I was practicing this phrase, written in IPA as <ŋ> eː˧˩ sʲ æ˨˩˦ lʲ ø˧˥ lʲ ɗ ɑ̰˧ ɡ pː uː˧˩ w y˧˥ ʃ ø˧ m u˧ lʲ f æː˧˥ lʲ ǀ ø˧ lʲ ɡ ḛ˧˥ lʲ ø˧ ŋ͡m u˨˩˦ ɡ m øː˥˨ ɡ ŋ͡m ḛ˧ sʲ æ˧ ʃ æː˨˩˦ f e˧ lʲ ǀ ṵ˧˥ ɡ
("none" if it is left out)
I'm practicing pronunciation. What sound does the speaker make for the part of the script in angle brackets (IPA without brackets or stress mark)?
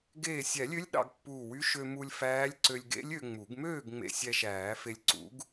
ɡ